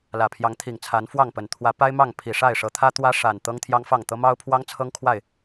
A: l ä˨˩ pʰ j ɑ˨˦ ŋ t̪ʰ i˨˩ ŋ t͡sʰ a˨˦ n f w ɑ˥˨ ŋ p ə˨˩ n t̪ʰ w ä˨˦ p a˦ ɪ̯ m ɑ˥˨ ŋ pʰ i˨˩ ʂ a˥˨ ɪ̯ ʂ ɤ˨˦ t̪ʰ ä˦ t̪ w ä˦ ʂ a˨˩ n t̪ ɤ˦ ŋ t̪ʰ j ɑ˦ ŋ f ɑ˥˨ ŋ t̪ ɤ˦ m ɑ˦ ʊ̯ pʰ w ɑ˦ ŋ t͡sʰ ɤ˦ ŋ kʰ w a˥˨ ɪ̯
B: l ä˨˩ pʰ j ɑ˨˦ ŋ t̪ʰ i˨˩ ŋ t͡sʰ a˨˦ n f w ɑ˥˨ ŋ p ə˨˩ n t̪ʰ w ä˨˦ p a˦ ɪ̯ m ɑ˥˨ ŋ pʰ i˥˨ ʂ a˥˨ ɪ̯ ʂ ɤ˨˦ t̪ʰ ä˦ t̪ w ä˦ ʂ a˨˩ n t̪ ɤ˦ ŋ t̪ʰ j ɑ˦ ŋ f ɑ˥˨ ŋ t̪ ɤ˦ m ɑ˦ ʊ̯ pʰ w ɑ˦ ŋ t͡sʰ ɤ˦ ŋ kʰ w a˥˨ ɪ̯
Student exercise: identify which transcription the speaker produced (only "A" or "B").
A